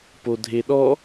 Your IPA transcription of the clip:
p o dʱ e ɗ ɔ

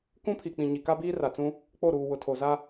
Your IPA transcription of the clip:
k ũ˦ pʰ i˨ k͡p ĩ˨ ɲ i˨ k a˦ b iː˦ r a˨ t͡s ũ˦ | k͡p o˦˨ ɾ uː˨ w ʊ˨ tʰ o˨ z a˦

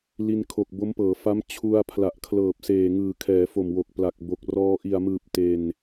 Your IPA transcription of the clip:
l i˧ n kʰ o˨˩ k̚ b o˦˥ m p ɤː˩˦ f a˦˥ m t͡ɕʰ u˧ a̯ pʰ l a˨˩ ʔ kʰ l ɤː˨˩ p̚ s eː˨˩ ŋ ɯː˨˩ kʰ ɛː˩˦ f o˨˩ m w o˨˩ k̚ p l a˨˩ k̚ b o˨˩ k̚ r ɔː˧ ʔ i˨˩ a̯ m ɯː˨˩ p̚ t e˧ n

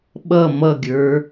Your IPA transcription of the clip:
ɓ ʌ m ʌ ɡʲ ə˞

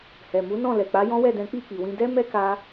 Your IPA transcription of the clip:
h ɛ˨ m u˨˦ n ɔ̃˦˨ l ɛ˨ k͡p a˨˦ j ɔ̃˦ w ɛ˦˨ d ɛ̃˨˦ k͡p i˦˨ k͡p i˨ w ĩ˧ d ɛ˦ m ɛ˦ k a˧

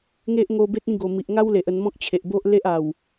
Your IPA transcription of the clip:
ŋ e˦ ʔ ŋ o˧ b e˦ t̚ ĩ˥˧ ɡ o˨˩ m i˨ ʔ ŋ a˦ w l e˨ ʔ ə˧ n m ɔ̃˦ k̚ t͡ɕʰ e˨ ʔ b o˦ ʔ l e˦ ʔ a˨˩ w

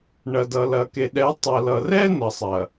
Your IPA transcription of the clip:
ɳ ɐ˨ d ʌ˨ l ɐ˨ k e˨ ɗ ɛ˨˦ tˤ ɐ˨ l ʌ˨ r ɛ˦ n ʌ˨ sˤ ɐ˨

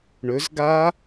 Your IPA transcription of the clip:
ɳ ɵ z ɡ a

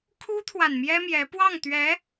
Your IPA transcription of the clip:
kʰ u˥ t̪ʰ w a˨ n m j ɛ˥ m j ɛ˧˥ p w ɑ˥˩ ŋ t̪ ɥ ɛ˧˥

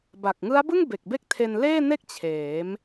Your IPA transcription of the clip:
b a˨˩ k̚ ŋ ɯ˦˥ a̯ b ɯ˥˩ ŋ b e˨˩ k̚ b e˥˩ k̚ tʰ e˧ n l eː˥˩ n e˥˩ k̚ t͡ɕʰ eː˩˦ m

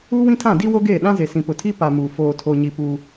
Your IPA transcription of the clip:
uː˦ w ĩ˦ tʰ ã˦˨ d i˦ w o˦ ɡ eː˦˨ ɗ ã˦ z e˨ s ĩ˨ p ʊ˨ tʰ i˦ p a˨ m uː˨ f oː˨ tʰ o˨ ɲ i˨ p uː˦

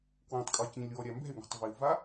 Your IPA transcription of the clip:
k w ẽ tˤ kʼ ɔ i̯ c ĩ lʲ w ɔ ɾʲ a m b ɛ̤ y̯ ŋ o̤ tˤ v i u̯ v a

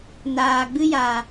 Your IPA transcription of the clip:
n aː˨ ɡ͡b ɨ˦ j aː˨

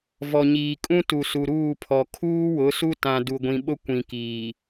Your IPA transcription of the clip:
v ɔ˨ ɲ iː˨ kʼ ũ˦ t u˨ s u˨ ɾ uː˦˨ pʰ ɔ˨ kʰ uː˦ w ʊ˨˦ s u˦ t ã˨ d u˨ ɡʷ ĩ˨ ɓ ʊ˦ kʷ ĩ˨ k iː˨

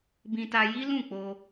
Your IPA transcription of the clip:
b ĩ˧ t a˧ j i˦ l ũ˦˨ k͡p o˧

